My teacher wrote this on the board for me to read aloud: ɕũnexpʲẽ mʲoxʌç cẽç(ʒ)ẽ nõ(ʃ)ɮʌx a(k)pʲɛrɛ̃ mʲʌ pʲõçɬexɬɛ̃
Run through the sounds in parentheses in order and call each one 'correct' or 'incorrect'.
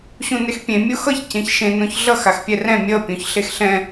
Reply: incorrect: ʃ, incorrect: ç, incorrect: x

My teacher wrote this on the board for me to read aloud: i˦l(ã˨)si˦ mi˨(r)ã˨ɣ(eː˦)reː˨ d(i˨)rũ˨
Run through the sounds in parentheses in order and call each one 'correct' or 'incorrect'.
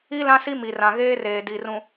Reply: incorrect: ã˦, correct, correct, correct

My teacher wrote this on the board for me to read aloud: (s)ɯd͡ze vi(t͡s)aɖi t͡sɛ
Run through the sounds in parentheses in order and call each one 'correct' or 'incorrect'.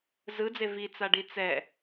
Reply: incorrect: z, correct

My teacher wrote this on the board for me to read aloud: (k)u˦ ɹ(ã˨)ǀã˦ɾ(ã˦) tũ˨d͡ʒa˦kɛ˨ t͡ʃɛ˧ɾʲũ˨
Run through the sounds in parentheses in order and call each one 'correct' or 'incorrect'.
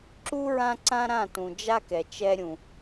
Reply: incorrect: ǁ, incorrect: ã˦, incorrect: ã˦˨

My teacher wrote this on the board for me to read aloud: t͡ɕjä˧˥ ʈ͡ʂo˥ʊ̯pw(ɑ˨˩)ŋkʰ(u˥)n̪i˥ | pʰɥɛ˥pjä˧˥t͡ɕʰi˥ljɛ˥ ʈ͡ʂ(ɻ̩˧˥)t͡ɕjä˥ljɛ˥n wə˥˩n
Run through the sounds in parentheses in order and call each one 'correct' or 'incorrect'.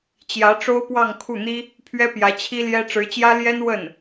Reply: incorrect: ɑ˥˧, incorrect: u˥˩, correct

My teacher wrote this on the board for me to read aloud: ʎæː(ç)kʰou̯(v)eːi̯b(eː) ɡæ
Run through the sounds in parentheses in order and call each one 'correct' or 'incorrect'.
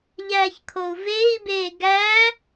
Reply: correct, correct, correct

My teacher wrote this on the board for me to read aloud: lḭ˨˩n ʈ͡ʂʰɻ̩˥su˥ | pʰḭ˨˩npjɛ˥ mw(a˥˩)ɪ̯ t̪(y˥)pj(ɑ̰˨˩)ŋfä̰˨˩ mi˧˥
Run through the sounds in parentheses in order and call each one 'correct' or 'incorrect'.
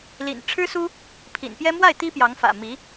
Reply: correct, incorrect: i˥, incorrect: ɑ˧˥

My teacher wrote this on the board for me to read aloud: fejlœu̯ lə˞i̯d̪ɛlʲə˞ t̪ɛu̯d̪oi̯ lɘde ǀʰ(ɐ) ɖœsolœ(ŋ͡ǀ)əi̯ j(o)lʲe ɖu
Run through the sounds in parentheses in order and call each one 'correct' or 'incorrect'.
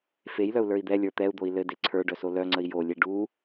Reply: incorrect: ə˞, correct, correct

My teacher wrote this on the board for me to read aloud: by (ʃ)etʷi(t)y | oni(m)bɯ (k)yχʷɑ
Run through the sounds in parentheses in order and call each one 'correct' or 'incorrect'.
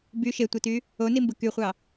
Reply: correct, correct, correct, correct

